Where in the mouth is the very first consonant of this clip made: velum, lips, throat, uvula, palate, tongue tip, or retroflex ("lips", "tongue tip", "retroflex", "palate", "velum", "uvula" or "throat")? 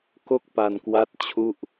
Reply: velum